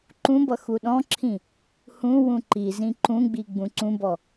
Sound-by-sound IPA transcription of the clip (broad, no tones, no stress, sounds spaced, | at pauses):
ǃ ũ b ʌ x u ɗ ɔ̃ ǁʰ ĩ | h ũ w ũ ǃ i z ĩ ǃ ũ ɡ͡b i ɡ͡b ũ ǀ ũ b ɔ